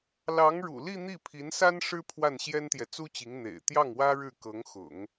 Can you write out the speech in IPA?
lɑ˧˥ŋɻṵ˨˩li˥˧ n̪i˥˩pʰi˧˥nsa˥n ʂɻ̩˥ pʰwa˥˩nɕjɛ˥nt̪jɛ˨ t͡su˥t͡ɕi˧˥ŋ n̪ḛ˨˩ɪ̯ t̪jɑ˥˩ŋwä˥ ɻɻ̩˥˩kɤ˧˥ŋxʊ̰˨˩˦ŋ

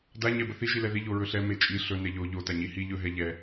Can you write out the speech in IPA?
da ɲɛbəθi ʒilɛði ʎoɹɵɬɛ met͡ʃʼi ɬɵ nɛʎo ʎo taɲihi ʎɵ ɦɛʎɛ

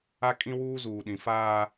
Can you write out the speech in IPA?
a˦kʼĩ˦wuː˦ zuː˨ɗĩ˨faː˦

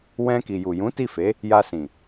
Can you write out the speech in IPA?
wɛ̃˧ ki˨ju˨jũ˨˦ ti˦˨fe˨˦ | ja˧sĩ˨

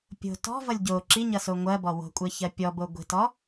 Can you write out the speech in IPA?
pʲo̤ tɔ̤vʌlʲ ɟo ǁiɲʌso ŋʷɜbɔ wo̤kʷʼɜçɜ pʲɔbo ɡʷi̤tɔ

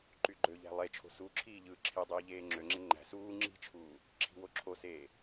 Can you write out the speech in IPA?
ǃyɡ͡ǃøʎæ̤ lˠet͡ʃʰo̤ suǁʰiː ʎɯːǁʰidˤiː ʎeːŋ͡ǁøŋ͡ǁe ŋ͡ǃæ̤ suː ŋ͡ǁi̤t͡ʃʰuː | ǁʰi̤woǁʰoseː

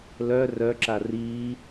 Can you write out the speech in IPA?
lœ rœǁa riː

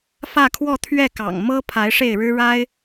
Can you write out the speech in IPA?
fä˥˧kʰwɔ˥˧ t̪ʰɥɛ˥˩kɑ̰˨˩ŋmɤ˥ pʰa˧˥ɪ̯ʂe˥˩ɪ̯ɻɻ̩˥ ɻa˥ɪ̯

